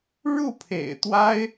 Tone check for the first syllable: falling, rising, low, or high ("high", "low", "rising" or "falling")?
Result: falling